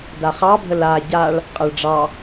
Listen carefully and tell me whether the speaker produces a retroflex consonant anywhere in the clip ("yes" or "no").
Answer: yes